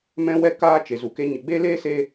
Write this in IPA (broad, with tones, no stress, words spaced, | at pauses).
mɛ̃˦wɛ˦ kaː˧t͡ʃe˨zu˨ke˧ ɲə˨ɡ͡be˦leː˦ se˦